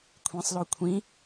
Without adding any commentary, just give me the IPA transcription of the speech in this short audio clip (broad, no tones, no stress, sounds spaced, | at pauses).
kʷʰ ĩ sˤ l o kʷʰ ĩ